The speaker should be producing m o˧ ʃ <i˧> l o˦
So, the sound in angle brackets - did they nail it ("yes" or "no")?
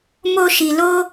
yes